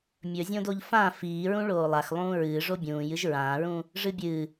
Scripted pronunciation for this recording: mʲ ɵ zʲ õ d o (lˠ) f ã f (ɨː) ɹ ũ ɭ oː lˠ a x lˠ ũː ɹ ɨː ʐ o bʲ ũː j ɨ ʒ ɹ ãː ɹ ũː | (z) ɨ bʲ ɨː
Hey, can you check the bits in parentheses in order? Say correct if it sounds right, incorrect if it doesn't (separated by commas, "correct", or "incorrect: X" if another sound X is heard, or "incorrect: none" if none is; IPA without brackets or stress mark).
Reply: incorrect: ʎ, incorrect: iː, incorrect: ʐ